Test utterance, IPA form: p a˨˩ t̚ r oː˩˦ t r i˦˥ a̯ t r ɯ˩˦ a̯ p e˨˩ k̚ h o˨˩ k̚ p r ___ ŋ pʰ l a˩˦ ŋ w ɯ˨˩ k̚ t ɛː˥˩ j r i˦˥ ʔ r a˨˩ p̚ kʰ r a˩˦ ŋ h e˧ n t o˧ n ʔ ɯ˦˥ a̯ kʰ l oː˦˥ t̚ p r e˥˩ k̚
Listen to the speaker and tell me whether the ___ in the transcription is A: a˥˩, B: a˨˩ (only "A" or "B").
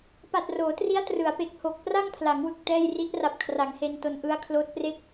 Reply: A